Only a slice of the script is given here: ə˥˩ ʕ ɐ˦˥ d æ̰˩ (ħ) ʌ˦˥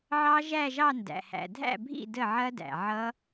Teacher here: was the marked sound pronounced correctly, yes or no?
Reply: no